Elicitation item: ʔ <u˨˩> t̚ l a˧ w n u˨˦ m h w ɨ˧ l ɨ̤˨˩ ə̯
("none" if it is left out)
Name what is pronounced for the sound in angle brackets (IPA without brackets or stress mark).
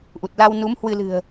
u˨˩